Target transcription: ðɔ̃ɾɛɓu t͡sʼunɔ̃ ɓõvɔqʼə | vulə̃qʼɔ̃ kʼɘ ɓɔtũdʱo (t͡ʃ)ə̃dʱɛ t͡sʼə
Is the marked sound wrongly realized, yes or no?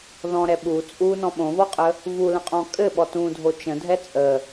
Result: no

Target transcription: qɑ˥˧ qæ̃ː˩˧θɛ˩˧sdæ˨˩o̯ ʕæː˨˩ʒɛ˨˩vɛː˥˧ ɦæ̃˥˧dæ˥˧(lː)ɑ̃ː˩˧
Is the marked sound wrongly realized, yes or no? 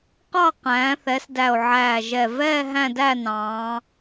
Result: yes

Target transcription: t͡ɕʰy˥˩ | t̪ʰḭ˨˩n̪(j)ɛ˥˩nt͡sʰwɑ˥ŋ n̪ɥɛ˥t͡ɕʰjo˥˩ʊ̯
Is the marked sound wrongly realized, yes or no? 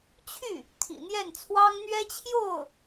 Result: no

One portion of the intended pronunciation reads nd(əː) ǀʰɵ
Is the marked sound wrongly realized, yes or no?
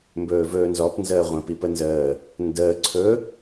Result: no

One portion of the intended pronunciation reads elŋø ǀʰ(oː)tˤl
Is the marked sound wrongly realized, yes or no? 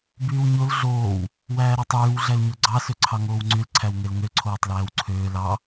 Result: no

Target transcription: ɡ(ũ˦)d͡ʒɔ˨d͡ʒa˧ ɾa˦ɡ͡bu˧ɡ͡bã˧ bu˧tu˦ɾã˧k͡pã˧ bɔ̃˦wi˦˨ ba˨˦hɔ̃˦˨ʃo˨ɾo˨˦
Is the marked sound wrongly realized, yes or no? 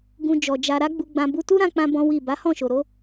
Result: yes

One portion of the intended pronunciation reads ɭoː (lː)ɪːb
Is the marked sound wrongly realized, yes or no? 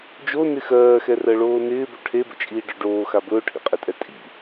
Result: yes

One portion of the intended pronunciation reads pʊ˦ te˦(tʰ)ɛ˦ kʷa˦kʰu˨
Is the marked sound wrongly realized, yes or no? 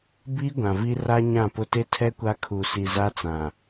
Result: no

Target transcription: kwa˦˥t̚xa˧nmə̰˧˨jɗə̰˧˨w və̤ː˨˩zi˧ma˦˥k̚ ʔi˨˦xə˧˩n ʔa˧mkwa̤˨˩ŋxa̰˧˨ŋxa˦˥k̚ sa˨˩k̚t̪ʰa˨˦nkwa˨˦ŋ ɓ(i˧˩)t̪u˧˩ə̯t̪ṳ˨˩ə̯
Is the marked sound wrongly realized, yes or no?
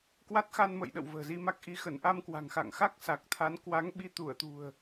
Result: yes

